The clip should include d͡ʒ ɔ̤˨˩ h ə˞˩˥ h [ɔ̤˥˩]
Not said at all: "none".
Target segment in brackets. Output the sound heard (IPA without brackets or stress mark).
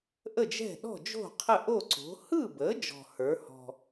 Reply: ɔ̤˨˩